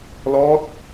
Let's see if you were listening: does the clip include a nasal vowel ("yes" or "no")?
no